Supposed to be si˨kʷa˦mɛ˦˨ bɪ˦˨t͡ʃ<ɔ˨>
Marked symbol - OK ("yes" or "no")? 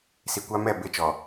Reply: yes